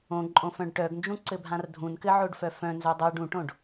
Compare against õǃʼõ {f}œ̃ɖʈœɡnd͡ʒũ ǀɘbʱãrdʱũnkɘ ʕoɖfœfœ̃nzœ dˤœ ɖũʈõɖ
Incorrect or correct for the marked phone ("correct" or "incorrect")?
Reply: correct